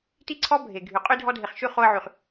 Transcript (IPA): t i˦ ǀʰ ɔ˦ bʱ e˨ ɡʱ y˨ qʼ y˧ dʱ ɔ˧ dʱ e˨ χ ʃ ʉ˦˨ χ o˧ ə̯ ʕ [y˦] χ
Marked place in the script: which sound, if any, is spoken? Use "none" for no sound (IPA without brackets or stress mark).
y˨